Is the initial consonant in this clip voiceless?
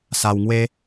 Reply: yes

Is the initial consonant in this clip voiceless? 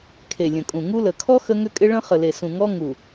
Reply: yes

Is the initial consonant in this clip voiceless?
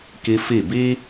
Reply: yes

